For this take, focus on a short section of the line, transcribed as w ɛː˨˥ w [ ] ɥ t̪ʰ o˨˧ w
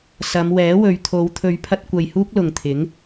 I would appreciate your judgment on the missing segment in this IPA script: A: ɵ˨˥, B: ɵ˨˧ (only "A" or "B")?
B